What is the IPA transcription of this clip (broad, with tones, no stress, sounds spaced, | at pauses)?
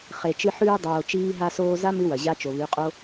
χ e˨ t͡ʃ ɨ˧ ħ ʉː˧ dˤ oː˨ t͡ʃ iː˧ ɦ a˧ s oː˧ z a˦ m ɨ˦ w ɐ˨ ʑ a˦ t͡ʃ o˨ β ʉ˨˦ qʼ o˦